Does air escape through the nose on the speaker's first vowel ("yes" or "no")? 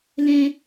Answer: yes